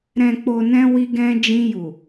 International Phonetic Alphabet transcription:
ɾɛ̃˨k͡po˨nɛ̃˧ wi˧ɡɛ̃˧ d͡ʒĩ˧ju˨

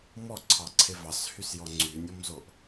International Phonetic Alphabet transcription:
mɔǀʰɑǀʰe vɑshysjɔ ŋ͡ǀynʲɔmzoʔ

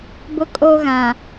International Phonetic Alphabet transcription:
bʊ˦kʼo˦ɣã˨

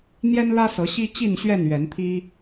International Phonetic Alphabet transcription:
n̪jɛ˦nlä˦sɤ˨˦ɕi˦ t͡ɕi˥˨nɕɥɛ˥˨nɥɛ˨˦nt̪ʰi˦

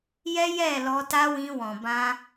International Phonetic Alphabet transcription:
jɛ˦ jɛ˦˨lɔ˧ ta˦wĩ˧wɔ̃˨ bã˧

